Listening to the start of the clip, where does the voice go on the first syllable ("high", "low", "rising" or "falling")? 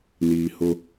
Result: low